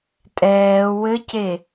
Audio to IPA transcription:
tʼ ɛː w ɘ c e

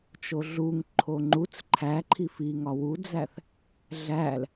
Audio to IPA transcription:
t͡ʃ o ɮ u ŋ ǃʰ o ŋ͡ǃ u t͡s ǃʰ æ ǃʰ i f i ŋ ɒ w u d͡z æ θ | ɮ æ l

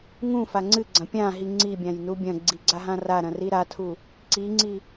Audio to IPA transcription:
ŋ ũ f a ŋ͡ǀ ɨ ɡ͡ǀ ɐ̃ pʲ ã ɦ i ŋ͡ǀ i bʲ ã j n u bʲ ɐ̃ ɡ͡ǀ i ɡ͡ǀ a ɦ ã r a ɾ ɐ̃ r i ɾ a tʰ u | ǀ i ŋ͡ǀ i

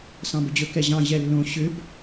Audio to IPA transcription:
s ɑ̃ b ɵ d͡ʑ ɵ k ɛ ʑ ɑ̃ ʑ ɛ lː õ ɕ ʏ b

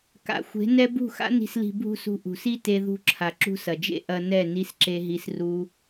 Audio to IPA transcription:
k a̰˨ xʷ e̤˨˦ n ɛ˦ b ṳ˦˨ x a̰˦ n i̤˧ s l i̤˧ bʱ ṳ˦˨ s ṳ˧ ʔ ṳ˨ s i˦ t e˧ ð ṳ˧ ǁʰ a˨ ǁ ṳ˦ s ɐ˨ d͡ʒ ḛ˦ ʔ ɐ˧ n ɛ˦˨ n i˦ s ǁ e˦ ɦ i˦ s r u˦

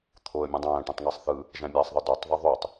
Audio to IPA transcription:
t̪ʰ o ə̯ mʲ ũ dˤ æ̃ː ʈ ũ tˤ ŋ æ sˤ θ ɯ | ʒ æ̃ mʲ æ sˤ ðˤ ɯ d o tˤ ðˤ i ðˤ y tˤ

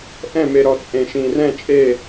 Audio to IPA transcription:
ʔ ɛ̃˦˨ m e˨ ɾ ɔ˨ t͡sʼ ẽ˨ ʃ ĩ˨ r ɛ̃˦˨ t͡ʃʼ e˦˨

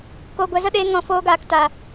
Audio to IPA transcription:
k o˨ ɡʷ ɛ˨ z ə˦ ɗ eː˧ ŋ ɔ̃˨ f oː˧ ɡ aː˨ k t a˨

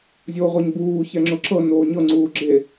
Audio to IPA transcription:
zʲ oː ʁʷ ɤ ɲ b uː ç ɛ ŋ͡ǁ ʊ ǁ ɤ n oː ɲ ɤ ŋ͡ǀ uː ɡ͡ǁ e

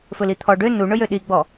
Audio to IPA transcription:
f ɵ l i t̪ʰ ɔ ɖ ø n u ɳ ɵ j ø ɗ i ɡ͡b ɔ

